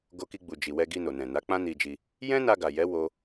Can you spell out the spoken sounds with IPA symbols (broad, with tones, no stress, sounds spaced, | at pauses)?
ɡ o˧ k i˧ ɡ͡b u˨ d͡ʒ i˨ w ɛ˧ ɡ i˧ n o˨ n ɛ̃˨ n a˨˦ k͡p ã˦ n i˧ d͡ʒ i˧ | j ɛ̃˦ n a˧ ɡ a˨ j ɛ˨˦ w o˦